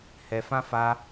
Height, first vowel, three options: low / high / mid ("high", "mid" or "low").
mid